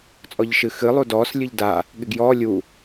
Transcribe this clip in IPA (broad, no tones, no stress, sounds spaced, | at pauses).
t͡sʼ ɔ ʎ ʃ ɨ x ɨ lˠ u d ɔː s lʲ ɨ ʎ d a | ɠ ɪ ɡ j ɔː lʲ u